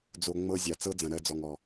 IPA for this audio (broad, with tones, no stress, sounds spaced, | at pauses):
d͡z o˧ ŋ͡m ɤ˦ zʲ a˨ t͡s ɤ˦ d͡z ɐ̃˨ ɾ ɜ˧ d͡z ɔ˨ ŋ ɔ˨